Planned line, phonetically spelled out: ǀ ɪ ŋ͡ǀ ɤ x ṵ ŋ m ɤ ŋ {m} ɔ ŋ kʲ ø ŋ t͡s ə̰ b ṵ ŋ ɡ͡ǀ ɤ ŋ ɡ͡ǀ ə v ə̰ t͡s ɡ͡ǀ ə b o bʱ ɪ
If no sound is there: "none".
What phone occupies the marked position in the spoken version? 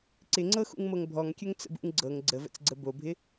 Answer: bʱ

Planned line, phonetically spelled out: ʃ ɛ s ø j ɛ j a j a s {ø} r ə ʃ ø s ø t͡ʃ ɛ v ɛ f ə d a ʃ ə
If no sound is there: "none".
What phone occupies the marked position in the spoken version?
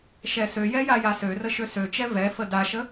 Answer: ø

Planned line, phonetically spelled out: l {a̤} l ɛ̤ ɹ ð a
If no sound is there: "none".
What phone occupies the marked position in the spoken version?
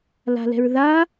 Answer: a̤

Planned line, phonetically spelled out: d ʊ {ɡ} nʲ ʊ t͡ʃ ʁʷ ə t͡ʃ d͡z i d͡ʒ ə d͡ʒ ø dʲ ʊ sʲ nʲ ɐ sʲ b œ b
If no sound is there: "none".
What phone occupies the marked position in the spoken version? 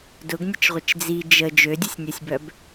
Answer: ɡ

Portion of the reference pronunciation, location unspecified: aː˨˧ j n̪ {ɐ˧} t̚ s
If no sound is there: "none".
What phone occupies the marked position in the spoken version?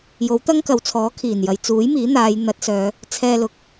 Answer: ɐ˨˥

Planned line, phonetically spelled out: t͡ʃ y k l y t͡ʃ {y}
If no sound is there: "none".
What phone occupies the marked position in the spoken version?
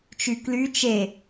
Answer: e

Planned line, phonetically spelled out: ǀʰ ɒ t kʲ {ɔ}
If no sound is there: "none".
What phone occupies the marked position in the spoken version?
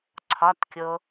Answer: o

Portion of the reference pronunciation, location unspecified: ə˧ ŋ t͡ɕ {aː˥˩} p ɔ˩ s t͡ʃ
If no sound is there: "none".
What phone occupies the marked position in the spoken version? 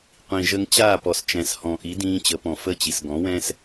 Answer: aː˥˩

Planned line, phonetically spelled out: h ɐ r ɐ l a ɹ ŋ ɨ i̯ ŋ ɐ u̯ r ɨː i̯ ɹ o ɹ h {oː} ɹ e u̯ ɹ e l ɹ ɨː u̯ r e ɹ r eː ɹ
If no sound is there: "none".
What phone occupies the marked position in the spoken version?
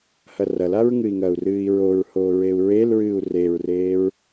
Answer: oː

